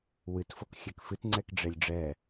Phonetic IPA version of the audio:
w ɨ t f o k xʲ ɛ k f ɨ t ŋ͡ǀ ɛ k ɖ͡ʐ e lʲ ɖ͡ʐ ɛ

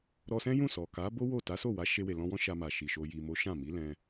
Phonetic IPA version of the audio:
ɾ ɔ˧ s ɛ̃˦ j ũ˦˨ s ɔ˨ k a˨˦ b o˦ w o˦˨ t a˨˦ s o˦˨ w a˨˦ ʃ e˧ w e˨ l ɔ̃˧ w ɔ̃˦ ʃ a˧ m a˨ ʃ i˨ ʃ o˧ j i˨ m o˨˦ ʃ ã˦˨ m i˨˦ l ɛ̃˧

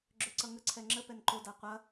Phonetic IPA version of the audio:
ɡ͡ǁ ø ǀ ʌ ŋ ə ǀʰ ɛ ŋ͡ǁ ə p ɛ n ǃ o d a qʷ ɐ

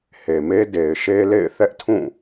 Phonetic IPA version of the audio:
h e˨ m e˦ d e˨ ɪ̯ ʃ e˦ l ḛ˦˨ ɪ̯ θ ɛ˦ ʔ tʰ ũ˦˨

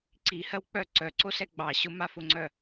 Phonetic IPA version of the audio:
ǀ i h ɜ w k͡p œ ǀ œ ǀ o s ɛ ɡ͡b ɑ ɕ ʊ m a f ʊ ŋ͡ǀ œ

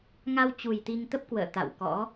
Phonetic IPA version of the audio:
ŋ a˧ w t͡ɕ u˨˩ j t̪ i˧ ŋ t̪ ə˦˥ p̚ k w ə̰ː˧˨ t̪ a̰˧˨ w k ɔ̰˧˥

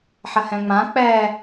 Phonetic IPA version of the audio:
ħ ɐ h ɛ̃ ŋ͡m ã k͡p ɛ

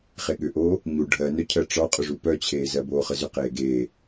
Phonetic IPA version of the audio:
χ e ɠ ʏ ʔ oː | ɲ u ɖʱ ɜ n œ cʰ ɜ ʈ͡ʂ ɒ qʼ ʏ ʐ u p œ t͡ɕʰ eː z ɜ b oː χ ə z ʏ q eː ɡ eː

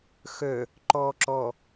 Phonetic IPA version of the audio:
x œ | ǃ ɔ ǁ ɔ

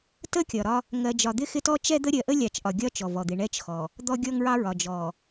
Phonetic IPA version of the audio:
t ə˦ kʲ ɒ˨ ɾ ɒ˦ | ŋ ɜ˨ d͡ʒ ɒ˨ d̪ ɪ˦ x ɪ˦ t ɔ˦ t͡ʃ ɛ˦ d̪ ə˦ ɾʲ ɜ˨ ʔ ə˦ lʲ ɑ˨ t͡ʃ ʔ ɒ˨ ɡʲ ɒ˦ t͡ʃ ɔ˨ v ɔ˨ d̪ ɪ˨ ɳ ɛ˦ t͡ʃ x ɔ˨ | d̪ ɔ˦ ɡʲ ɔ˦ ŋ ɹ ɑ˦ ɹ ɒ˨ d͡ʒ ɔ˨

